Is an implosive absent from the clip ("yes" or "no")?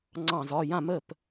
yes